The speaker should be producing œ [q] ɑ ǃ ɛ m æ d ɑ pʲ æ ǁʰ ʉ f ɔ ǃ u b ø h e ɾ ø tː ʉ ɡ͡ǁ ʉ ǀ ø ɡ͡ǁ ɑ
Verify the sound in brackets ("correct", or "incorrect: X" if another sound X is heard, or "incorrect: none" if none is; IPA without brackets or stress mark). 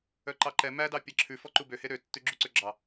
incorrect: ǃ